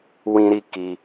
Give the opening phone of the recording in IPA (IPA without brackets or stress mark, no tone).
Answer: w